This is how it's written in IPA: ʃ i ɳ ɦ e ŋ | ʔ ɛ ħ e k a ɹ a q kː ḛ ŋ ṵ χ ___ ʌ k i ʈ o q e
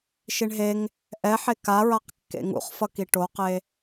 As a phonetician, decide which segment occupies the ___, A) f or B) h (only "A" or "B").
A